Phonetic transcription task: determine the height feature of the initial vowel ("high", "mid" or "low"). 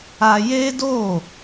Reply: low